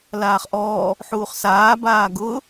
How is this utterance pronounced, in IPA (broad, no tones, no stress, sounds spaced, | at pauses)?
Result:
l aː χ ʔ ɔː | ħ uː χ s aː b aː ɡ ʊː